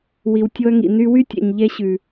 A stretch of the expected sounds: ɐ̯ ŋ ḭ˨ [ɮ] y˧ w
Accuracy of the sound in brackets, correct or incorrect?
incorrect